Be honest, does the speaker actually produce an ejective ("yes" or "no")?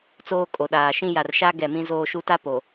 yes